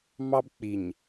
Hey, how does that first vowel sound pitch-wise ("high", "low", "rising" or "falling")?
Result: high